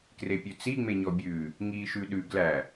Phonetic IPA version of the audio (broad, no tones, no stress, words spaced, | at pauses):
krepʲʉt͡si ŋ͡meɲɔbʲʉː | ŋiːʃʉɗʉ ɡlæ